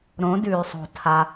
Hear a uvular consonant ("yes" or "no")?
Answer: no